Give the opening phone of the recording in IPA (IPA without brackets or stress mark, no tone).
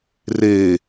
r